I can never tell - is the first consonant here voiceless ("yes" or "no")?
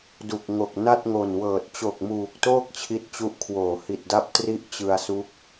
no